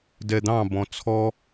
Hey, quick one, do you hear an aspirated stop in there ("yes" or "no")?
yes